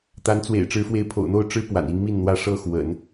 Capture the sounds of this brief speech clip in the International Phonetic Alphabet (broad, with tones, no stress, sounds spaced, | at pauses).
t̪ a˧˥ n t͡s w ḛ˨˩ ɪ̯ ʈ͡ʂ ɻ̩˧˥ f w e˧˥ ɪ̯ pʰ o̰˨˩ ʊ̯ n̪ o˥˩ ʊ̯ ʈ͡ʂ ɻ̩˥ p w a̰˨˩ n i˧˥ ŋ m i˥˩ n n̪ w ä˥ ʂ ɤ˥˩ x w ə̰˨˩˦ n